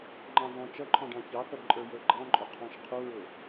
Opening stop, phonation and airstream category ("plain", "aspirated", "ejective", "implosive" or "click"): click